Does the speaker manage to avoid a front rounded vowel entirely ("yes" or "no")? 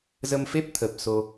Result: yes